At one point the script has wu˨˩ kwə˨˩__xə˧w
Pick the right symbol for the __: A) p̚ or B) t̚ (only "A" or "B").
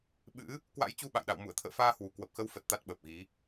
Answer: A